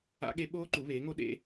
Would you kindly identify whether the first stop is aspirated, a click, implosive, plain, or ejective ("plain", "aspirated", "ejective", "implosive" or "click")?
implosive